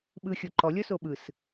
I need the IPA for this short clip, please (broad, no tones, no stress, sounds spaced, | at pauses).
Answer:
ɓ ɯ xʲ o ǃ ɔ lʲ ɔ s o ɓ ɯ s